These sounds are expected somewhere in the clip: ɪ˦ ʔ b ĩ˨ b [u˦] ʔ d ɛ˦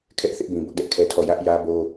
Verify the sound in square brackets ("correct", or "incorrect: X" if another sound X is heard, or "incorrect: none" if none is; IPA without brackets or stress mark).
incorrect: ʊ˦